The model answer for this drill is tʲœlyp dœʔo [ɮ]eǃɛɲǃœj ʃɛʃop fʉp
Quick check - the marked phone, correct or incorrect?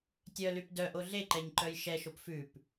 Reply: correct